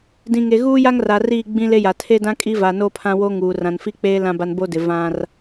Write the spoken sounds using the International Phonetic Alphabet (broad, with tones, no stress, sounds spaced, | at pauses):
d ĩ˨ ŋ e˨ ɣ uː˦ j a˦ ŋ r a˨ r iː˦˨ ɡ͡b ĩ˦ l e˦ j a˨ tʰ e˦ d ã˦ kʼ i˦ v a˨ n o˦ pʰ ã˦ w o˦ ŋ uː˨ r ã˨ n f i˦ k͡p eː˦ l ã˦ b a˦ n b o˦ d ɪ˨ v ã˦ r